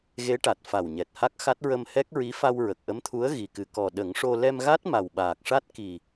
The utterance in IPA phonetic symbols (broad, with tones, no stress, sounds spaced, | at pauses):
ɣ e˧˥ ʈ a˨˩ t̚ f a˨˩ w ɲ ɛ˨˩ t̚ h a˦˥ k̚ x a˦˥ t̚ ɹ ə˧ m h ɛ˦˥ k̚ ɹ i˧˥ f a˧ w ɹ ə˨˩ k̚ ʔ ə˧˥ m t̪ʰ u˧˥ ə̯ ɣ i˨˩ k ɨ˨˩ k ɔ˨˩ ɗ ə˨˩˦ ŋ ʂ o˧ l ɛ˧ m ɣ a˦˥ t̚ m a˨˩ w ɓ aː˨˩ k̚ ʂ a˦˥ t̚ k i˨˩